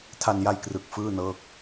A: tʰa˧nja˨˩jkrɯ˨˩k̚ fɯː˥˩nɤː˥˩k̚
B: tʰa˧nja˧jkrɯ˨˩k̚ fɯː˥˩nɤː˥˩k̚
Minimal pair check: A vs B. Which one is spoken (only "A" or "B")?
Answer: B